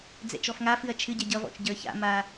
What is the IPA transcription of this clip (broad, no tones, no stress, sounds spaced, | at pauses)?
d͡z ɛ̰ t͡ʃ ɔ f ŋ a f ɨ ɐ̯ t͡ʃʰ ɨ ɟ ɛ ɟ ʌ v ɔ̰ t͡ʃ ɟ ə˞ ç a̰ m a